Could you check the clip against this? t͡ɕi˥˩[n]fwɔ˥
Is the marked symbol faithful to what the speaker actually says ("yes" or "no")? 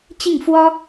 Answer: no